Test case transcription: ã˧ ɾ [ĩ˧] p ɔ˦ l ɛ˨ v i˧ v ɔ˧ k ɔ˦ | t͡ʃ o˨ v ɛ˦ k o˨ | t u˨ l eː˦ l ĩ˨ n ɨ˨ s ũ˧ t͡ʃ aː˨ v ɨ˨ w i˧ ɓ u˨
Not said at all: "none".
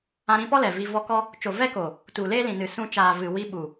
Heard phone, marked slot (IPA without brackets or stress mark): ĩ˧